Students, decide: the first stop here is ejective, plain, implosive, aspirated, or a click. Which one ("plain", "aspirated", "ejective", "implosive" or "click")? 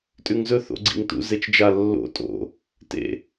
ejective